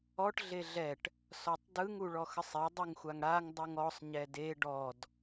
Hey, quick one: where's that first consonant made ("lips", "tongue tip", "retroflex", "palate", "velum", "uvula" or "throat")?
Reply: retroflex